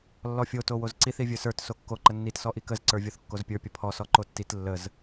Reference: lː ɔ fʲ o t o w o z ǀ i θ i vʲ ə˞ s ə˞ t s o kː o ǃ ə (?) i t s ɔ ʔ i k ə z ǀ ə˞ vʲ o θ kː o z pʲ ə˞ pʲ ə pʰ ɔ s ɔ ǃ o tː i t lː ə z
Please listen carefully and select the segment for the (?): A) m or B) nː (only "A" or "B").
B